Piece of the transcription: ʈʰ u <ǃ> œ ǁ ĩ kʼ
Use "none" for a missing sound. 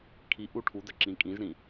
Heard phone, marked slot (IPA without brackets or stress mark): d